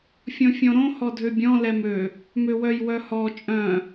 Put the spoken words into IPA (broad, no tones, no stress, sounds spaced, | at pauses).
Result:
fʲ ɔ̃ fʲ ɔ̃ ɾ õ h ɔ dʱ ø bʲ ɔ̃ l ɛ m ø | m ø w œ j w œ h ɔ t͡ʃʼ œ̃